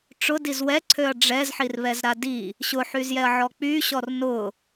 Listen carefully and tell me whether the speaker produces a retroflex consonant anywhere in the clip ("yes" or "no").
yes